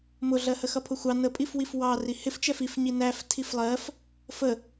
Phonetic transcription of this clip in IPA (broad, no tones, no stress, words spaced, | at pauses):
mʊɮɜhəxʌ pʰʊxʷɑ nəpʼifwif wɑ rihɪft͡ʃɛf ifɲi næf tʰiflˠɜf | fə